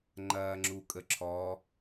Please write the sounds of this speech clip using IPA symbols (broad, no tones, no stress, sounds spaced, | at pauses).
ŋ͡ǃ ɐː ŋ͡ǁ u kʼ ə ǁʰ ɔ